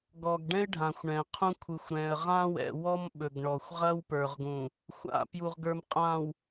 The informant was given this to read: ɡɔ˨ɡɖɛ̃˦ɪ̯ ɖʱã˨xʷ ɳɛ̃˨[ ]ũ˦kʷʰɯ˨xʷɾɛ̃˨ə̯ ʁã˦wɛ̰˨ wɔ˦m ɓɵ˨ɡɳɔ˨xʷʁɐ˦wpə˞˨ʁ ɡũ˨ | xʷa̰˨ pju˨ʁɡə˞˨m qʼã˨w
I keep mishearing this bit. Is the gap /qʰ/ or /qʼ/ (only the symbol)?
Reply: qʰ